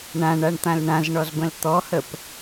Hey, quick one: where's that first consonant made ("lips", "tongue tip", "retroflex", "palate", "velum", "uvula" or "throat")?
retroflex